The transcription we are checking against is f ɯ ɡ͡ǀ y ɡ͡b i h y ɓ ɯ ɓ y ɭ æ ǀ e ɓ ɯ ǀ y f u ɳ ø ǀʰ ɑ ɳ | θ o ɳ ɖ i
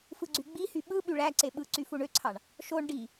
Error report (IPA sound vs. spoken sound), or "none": θ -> ʃ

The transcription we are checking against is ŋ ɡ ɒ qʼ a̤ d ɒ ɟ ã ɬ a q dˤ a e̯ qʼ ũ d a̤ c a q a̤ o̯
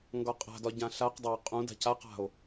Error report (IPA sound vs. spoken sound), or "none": none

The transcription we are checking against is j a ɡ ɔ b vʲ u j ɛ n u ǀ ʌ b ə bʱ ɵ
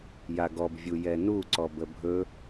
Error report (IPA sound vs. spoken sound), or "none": ʌ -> ɔ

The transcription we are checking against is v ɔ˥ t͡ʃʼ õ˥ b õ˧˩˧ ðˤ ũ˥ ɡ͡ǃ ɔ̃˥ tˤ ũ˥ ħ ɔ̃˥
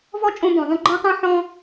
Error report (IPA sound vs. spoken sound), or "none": none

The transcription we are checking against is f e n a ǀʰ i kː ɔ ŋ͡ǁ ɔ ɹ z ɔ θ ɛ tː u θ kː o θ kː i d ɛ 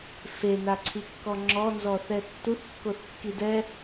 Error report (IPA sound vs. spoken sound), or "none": ɹ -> n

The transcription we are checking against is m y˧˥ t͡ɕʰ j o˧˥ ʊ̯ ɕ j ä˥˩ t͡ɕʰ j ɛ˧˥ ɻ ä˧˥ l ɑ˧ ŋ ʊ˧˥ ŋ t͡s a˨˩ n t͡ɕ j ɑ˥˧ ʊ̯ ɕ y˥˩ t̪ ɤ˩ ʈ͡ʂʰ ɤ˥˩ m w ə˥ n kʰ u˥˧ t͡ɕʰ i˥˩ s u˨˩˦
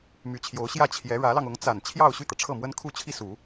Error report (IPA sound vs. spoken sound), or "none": t͡ɕ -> t͡ɕʰ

